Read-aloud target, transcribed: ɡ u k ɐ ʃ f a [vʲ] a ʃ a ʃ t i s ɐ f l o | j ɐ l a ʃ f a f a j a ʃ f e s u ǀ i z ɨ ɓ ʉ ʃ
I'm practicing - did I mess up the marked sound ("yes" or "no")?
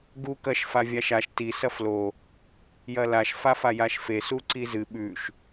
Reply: no